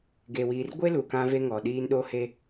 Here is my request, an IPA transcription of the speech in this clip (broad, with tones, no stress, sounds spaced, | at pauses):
ɡ e˨ w iː˨ r ɡʷ e˦ l u˨ k ã˦ v e˦ ŋ ɔ˨ ɗ iː˦ n ɗ o˦ h e˦